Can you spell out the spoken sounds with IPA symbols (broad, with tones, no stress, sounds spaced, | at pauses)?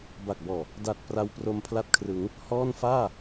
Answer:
b a˨˩ k̚ b ɔː˨˩ | d a˨˩ t̚ p r a˧ w p r o˧ m pʰ l a˦˥ t̚ kʰ r ɯ˩˦ ŋ | h ɔː˥˩ n f aː˥˩